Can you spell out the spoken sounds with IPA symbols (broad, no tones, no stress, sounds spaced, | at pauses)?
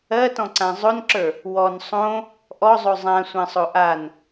ɜ t ɔ̃ ǀ ã zˤ o n ǁ ə˞ | w ɔ n sˤ õ | ʔ ɔ zˤ o zˤ ã sʷ ã sˤ o ʔ a n